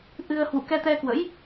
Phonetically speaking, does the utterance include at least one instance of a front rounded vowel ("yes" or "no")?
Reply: no